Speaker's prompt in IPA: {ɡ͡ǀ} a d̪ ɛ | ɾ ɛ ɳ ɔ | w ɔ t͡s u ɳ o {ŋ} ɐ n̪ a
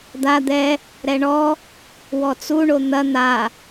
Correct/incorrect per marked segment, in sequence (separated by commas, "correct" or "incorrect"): incorrect, incorrect